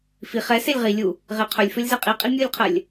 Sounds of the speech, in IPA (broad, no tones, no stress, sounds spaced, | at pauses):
f i χ ɛ s e lʲ ʁ i lʲ u | ʁ e qʰ ɵ lʲ f ɵ lʲ z ɛ qʼ i qʼ i mʲ u lʲ qʰ ɜ lʲ